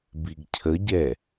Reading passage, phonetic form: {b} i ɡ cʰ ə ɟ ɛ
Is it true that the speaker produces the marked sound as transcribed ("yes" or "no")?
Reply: yes